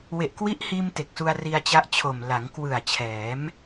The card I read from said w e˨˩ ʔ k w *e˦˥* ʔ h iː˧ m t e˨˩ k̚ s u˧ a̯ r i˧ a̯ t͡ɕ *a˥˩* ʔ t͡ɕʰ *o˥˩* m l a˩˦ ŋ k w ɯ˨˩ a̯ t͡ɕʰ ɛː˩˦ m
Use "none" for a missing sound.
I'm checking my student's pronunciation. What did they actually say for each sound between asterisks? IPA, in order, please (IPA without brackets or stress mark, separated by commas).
i˦˥, a˦˥, o˨˩